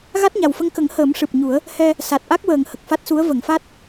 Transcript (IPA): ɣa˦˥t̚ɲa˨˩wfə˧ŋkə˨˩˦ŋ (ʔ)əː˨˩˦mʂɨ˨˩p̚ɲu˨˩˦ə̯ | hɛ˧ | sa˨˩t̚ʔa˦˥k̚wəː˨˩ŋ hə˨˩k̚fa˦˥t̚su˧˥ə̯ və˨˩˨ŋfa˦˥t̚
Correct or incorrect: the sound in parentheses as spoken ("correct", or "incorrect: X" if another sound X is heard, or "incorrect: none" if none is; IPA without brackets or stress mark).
incorrect: h